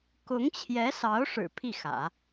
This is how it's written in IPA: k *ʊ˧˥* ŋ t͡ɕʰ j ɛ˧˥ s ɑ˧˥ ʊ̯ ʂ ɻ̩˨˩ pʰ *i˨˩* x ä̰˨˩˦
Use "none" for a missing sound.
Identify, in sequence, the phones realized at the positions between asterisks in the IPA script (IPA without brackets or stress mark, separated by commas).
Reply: ʊ˧˥, i˥˩